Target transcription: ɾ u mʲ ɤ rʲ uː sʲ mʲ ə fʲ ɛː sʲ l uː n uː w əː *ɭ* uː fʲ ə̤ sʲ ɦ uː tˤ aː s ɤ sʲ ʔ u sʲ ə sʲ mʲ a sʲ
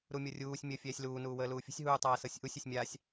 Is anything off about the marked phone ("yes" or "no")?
yes